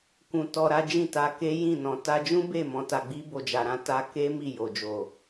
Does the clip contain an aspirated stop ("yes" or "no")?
no